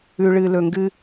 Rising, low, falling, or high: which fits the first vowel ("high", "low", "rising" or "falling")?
low